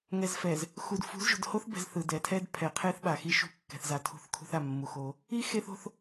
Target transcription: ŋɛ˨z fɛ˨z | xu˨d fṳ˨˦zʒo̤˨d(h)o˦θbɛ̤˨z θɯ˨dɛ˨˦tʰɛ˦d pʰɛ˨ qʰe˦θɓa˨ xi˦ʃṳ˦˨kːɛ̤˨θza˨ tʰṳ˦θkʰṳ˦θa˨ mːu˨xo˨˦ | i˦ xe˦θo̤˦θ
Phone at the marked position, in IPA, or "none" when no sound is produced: h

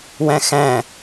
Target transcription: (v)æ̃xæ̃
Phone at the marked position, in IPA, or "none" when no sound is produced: w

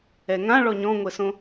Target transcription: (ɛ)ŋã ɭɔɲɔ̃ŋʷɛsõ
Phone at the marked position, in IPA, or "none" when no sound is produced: ɛ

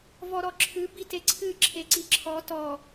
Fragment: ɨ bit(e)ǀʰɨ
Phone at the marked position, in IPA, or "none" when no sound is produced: e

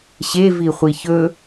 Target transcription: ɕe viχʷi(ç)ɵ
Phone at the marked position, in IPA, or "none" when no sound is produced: ç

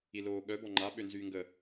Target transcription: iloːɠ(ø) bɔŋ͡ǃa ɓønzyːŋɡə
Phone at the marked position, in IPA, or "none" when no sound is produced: œ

